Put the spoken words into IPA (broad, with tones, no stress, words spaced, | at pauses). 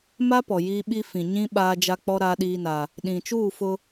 ma˦ pɔ˨ jiː˦ɓi˦ fĩ˨ ɲĩ˦ ɓaː˦ d͡ʒa˦k͡pɔ˦ ɾaː˦ɗiː˦na˦ | ɗĩ˨t͡ʃuː˦˨fʊ˦